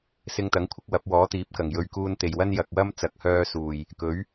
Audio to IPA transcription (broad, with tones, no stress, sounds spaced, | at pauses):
s ɪ˧ ŋ t̪ ɐ˨˥ ŋ kʷʰ ɪ˨˥ k̚ w ɐ˨˥ p̚ w ɔː˨˥ t̪ iː˨˥ p̚ k ɐ˨˩ ŋ j ɵ˨ ɥ k uː˧ n t̪ e˨˩ j w ɐ˥ n j ɐ˨ k̚ w ɐ˥ m t͡s ɐ˨˥ k̚ h œː˧ s uː˨˩ j | k ɵ˨˥ ɥ